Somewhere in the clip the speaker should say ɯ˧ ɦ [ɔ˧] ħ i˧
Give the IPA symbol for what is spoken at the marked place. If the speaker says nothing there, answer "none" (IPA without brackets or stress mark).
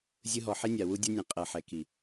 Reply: ɔ˨